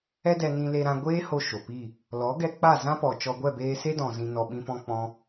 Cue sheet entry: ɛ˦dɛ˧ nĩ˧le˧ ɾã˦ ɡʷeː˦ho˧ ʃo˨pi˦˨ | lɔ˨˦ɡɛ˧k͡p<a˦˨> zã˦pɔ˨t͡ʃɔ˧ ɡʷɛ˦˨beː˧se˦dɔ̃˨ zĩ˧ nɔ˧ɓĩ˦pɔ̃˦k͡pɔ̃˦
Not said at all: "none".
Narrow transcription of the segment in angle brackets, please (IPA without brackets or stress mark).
a˦˨